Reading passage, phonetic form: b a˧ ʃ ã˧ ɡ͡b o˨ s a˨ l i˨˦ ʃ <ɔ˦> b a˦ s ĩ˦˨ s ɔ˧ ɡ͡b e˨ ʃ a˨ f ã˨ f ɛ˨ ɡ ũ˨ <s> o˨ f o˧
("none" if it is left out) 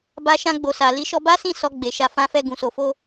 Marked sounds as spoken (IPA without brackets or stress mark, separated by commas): ɔ˧, s